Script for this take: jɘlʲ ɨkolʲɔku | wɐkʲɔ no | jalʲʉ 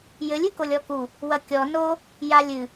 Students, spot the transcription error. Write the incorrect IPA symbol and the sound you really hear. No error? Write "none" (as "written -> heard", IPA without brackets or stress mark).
ʉ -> ɨ